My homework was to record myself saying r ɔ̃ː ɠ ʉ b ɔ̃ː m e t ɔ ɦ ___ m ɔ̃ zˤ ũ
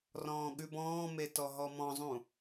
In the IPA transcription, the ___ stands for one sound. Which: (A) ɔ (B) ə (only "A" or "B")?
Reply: A